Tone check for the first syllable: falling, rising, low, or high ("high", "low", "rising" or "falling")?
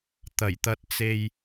low